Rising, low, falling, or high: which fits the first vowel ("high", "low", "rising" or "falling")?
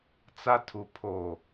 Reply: high